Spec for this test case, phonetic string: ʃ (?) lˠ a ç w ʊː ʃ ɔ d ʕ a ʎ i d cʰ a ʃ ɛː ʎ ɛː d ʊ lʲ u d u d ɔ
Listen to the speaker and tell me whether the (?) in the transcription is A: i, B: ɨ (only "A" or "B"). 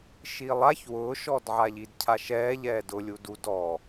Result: A